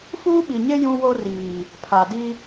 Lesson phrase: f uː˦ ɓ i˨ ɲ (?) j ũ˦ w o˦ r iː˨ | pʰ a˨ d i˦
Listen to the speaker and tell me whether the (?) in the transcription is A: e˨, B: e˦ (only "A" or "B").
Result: B